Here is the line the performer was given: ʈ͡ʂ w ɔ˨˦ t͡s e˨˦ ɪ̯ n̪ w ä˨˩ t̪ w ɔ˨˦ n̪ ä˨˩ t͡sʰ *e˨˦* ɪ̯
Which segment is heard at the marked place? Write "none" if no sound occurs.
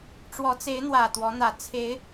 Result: e˨˦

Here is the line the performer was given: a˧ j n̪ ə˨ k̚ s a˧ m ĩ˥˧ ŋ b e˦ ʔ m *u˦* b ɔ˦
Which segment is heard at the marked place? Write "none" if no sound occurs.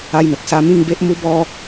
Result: u˦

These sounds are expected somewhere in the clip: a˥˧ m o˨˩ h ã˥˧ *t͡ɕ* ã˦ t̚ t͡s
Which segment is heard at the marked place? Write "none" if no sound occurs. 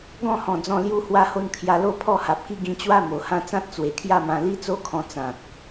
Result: t͡s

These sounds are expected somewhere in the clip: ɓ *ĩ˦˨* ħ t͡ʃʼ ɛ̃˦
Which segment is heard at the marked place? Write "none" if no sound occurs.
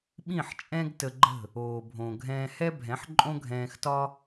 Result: ĩ˦˨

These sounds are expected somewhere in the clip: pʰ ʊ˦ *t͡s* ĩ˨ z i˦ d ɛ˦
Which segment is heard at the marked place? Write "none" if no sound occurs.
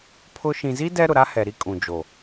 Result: ʃ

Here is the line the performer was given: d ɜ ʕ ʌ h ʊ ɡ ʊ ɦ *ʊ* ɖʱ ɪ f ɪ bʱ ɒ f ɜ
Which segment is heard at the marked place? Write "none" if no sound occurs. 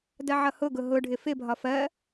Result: ʊ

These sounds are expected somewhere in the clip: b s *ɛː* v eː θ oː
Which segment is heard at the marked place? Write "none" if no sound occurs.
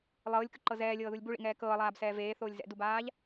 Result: ɛː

